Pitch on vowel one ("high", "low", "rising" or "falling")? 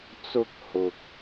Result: high